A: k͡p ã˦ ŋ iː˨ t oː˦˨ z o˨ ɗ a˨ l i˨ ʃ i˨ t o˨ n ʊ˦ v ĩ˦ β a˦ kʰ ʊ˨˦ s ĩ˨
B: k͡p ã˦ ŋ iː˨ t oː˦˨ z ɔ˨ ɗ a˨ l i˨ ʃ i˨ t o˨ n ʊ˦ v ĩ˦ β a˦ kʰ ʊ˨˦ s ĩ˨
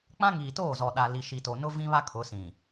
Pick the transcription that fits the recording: B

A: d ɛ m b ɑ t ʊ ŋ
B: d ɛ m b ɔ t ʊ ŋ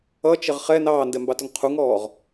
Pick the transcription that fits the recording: A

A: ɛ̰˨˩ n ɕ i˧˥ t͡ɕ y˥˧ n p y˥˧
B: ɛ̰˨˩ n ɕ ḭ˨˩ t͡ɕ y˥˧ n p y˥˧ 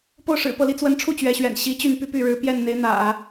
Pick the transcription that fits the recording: A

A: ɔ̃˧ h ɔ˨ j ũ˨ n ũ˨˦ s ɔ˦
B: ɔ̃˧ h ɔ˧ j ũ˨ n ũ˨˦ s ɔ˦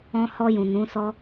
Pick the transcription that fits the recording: B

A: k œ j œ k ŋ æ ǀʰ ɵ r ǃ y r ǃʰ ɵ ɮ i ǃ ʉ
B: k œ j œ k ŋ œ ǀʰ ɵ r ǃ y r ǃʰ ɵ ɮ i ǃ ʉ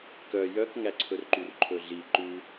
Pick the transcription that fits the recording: A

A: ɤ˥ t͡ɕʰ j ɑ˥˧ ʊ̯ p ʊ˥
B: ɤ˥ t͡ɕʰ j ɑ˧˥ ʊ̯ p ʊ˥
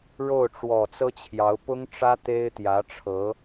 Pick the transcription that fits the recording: B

